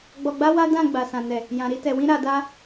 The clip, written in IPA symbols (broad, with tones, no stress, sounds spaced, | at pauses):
ɡ͡b ɔ˧ ɡ͡b a˦ w a˦ d ã˦˨ ɡ͡b a˨ s ã˨ n ɛ˨ | j ã˨ ɾ i˧ t ɛ˨ w ĩ˧ ɾ a˨ d a˧